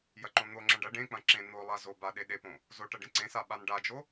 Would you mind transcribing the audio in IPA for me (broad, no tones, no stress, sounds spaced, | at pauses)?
j ɐ ǃ õ n̪ o ŋ͡ǁ ɐ̃ ɖ ɐ ɖ ẽ k͡p ɐ̃ ǁ ẽ n̪ o lˠ a z o b a ɗ e ɗ e p õ | z o ʈ ɐ ɖ ẽ ǀ ẽ s a ɓ a n ɖ a d͡ʒ o